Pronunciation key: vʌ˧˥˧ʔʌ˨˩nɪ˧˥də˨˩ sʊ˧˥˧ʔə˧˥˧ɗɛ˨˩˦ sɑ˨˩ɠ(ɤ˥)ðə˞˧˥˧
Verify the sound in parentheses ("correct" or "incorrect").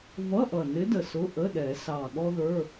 incorrect